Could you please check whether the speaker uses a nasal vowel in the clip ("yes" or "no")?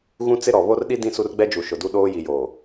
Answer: yes